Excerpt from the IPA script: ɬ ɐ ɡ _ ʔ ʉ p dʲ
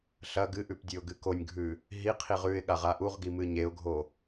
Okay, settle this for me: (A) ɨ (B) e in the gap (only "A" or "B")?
A